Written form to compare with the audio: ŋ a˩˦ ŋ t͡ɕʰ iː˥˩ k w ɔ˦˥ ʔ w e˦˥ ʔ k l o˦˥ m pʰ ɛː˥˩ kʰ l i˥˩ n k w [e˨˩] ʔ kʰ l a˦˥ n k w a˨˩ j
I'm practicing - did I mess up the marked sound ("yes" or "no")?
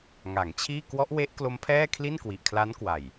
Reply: yes